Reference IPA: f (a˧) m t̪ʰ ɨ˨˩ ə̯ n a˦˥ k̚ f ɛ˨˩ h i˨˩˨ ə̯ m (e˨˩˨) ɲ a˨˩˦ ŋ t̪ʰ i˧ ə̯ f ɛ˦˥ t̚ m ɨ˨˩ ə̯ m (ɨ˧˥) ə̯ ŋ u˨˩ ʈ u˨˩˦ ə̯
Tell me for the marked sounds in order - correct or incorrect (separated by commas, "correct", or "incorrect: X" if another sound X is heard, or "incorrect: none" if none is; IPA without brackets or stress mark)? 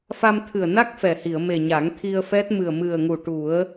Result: correct, incorrect: e˨˩, incorrect: ɨ˨˩